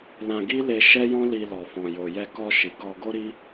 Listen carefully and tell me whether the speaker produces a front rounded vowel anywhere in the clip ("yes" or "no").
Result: no